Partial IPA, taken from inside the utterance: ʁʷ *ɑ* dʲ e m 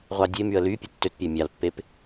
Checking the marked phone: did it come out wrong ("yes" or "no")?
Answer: no